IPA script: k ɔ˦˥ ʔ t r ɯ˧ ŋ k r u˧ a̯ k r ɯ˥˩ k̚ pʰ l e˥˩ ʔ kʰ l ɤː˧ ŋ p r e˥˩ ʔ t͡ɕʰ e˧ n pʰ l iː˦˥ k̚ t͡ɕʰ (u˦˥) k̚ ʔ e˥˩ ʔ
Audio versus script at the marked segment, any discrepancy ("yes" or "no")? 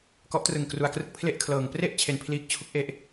no